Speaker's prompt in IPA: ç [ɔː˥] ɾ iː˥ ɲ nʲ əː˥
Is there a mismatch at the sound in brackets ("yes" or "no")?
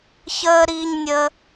yes